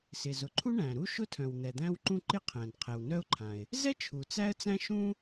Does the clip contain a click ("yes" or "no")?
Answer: yes